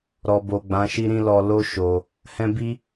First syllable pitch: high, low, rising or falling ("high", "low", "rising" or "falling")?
low